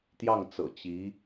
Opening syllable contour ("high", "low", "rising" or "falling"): falling